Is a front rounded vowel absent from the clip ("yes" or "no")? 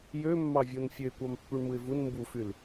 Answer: no